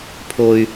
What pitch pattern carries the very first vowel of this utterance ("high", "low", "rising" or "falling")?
high